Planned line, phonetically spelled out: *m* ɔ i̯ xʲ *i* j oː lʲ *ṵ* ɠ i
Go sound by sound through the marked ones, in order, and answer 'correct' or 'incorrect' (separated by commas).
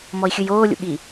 correct, incorrect, correct